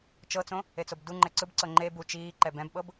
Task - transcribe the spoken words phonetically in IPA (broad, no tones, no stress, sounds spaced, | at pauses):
t͡ʃ ɤ t͡s õ | e t͡s o b d u ŋ͡ǃ ɛ ǀ ɯ b ǀ ɤ ŋ͡ǃ e b u t͡ʃ iː ǃ ɛ b ɛ̃ b ɓ ɤ b